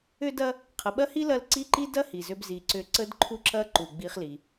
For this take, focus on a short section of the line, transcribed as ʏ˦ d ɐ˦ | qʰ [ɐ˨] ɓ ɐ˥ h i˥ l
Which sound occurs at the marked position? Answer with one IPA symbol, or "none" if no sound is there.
ə˨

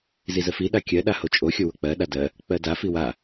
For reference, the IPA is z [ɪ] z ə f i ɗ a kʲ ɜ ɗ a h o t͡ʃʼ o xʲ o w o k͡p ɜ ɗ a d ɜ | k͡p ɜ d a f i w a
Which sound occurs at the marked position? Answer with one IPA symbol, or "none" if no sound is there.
i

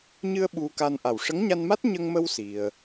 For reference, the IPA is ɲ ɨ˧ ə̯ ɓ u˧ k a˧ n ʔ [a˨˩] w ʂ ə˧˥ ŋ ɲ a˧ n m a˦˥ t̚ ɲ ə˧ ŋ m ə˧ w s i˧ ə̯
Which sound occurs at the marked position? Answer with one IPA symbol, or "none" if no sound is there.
a˨˩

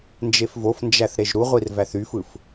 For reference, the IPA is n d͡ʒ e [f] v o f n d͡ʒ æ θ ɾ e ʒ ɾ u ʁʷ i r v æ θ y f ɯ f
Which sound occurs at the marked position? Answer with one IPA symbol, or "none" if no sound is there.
f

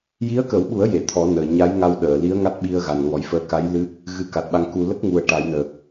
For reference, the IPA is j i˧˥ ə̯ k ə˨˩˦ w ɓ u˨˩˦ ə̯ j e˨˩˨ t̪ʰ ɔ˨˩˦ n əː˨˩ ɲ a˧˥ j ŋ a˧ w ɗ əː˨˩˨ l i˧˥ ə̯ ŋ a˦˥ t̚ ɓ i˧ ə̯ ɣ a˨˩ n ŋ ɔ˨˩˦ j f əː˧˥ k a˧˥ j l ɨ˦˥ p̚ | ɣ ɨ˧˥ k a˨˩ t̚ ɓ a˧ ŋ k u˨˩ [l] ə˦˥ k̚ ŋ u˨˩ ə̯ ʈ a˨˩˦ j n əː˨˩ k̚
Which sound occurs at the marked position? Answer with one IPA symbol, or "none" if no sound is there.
l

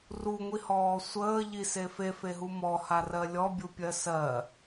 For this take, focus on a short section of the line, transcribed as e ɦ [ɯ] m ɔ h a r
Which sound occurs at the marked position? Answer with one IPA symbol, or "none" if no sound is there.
u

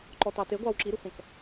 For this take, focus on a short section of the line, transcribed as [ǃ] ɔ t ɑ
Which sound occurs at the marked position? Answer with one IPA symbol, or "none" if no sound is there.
ǃ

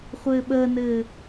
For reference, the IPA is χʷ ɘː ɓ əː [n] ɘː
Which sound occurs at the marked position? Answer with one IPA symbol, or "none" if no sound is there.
n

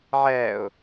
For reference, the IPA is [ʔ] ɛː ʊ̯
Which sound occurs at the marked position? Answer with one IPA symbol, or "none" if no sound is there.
ʕ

